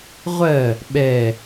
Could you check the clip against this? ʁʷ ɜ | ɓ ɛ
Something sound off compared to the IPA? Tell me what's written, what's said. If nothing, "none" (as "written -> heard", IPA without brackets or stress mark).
none